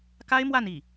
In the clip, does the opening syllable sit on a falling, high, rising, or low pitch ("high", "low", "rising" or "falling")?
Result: high